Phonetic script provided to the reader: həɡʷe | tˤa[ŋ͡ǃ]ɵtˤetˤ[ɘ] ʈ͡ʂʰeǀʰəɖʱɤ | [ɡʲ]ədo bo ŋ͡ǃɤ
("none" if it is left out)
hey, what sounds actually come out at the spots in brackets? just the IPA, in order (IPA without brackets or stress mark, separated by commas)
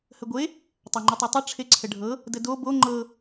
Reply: ŋ͡ǃ, ɘ, d